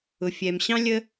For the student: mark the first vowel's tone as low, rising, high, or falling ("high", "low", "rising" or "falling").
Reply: low